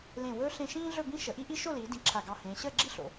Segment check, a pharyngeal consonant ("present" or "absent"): absent